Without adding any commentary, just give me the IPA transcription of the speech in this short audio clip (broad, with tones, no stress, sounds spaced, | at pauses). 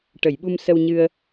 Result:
ʈ ə˨˩˨ j ɓ u˧ m s ə˧ w ɲ ɨ˧ ə̯